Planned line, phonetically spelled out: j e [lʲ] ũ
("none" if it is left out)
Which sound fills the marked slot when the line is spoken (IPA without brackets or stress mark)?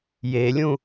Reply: lʲ